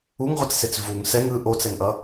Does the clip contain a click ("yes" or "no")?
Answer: no